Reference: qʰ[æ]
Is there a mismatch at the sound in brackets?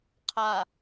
yes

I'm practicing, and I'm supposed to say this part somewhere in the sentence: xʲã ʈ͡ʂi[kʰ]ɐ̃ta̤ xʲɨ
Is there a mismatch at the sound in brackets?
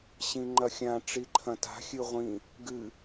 yes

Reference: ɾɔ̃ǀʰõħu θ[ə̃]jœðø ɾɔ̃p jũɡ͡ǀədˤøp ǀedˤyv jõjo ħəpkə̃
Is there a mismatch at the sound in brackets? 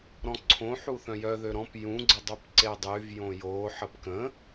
yes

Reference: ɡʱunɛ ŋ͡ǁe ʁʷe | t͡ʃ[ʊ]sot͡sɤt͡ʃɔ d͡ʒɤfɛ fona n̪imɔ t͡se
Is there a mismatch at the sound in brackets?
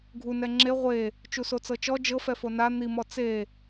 yes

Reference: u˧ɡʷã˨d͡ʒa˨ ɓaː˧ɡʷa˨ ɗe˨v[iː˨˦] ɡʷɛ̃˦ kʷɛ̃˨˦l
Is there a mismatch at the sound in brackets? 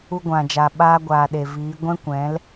no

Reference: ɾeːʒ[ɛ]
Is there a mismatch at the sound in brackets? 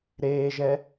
no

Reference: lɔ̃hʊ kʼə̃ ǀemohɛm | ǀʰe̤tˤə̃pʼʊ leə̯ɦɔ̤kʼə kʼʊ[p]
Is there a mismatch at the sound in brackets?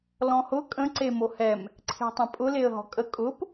no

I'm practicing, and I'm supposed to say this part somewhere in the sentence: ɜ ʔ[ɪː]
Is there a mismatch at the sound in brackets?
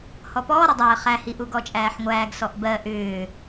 yes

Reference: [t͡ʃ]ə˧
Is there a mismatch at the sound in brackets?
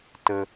yes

